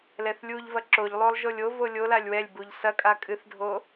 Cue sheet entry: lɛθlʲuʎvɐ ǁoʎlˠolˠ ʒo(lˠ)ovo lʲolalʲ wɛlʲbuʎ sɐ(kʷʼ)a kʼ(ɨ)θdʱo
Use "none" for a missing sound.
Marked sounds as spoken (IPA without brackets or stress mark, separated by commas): lʲ, kʼ, ɨ